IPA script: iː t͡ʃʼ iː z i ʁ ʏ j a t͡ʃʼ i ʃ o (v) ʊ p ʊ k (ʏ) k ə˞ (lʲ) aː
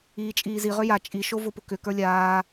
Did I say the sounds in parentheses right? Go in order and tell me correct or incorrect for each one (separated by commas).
correct, correct, correct